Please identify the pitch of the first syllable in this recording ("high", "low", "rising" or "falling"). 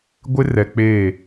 high